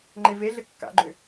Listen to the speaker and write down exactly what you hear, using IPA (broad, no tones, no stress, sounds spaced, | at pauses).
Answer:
ŋ͡ǃ e v e ɮ ɘ kː a̰ ɡ͡ǃ ʏ